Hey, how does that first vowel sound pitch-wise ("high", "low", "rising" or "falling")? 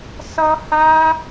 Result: high